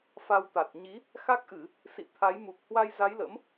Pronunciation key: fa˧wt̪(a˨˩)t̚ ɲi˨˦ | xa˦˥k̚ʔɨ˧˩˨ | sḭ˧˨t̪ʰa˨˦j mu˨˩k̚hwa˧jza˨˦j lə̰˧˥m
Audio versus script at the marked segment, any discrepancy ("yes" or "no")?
no